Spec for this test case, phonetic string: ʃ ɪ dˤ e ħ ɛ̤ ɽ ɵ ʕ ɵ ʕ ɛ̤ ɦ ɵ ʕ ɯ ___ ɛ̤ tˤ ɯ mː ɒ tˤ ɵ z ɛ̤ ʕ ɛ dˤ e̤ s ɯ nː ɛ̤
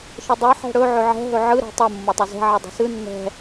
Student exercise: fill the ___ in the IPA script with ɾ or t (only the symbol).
ɾ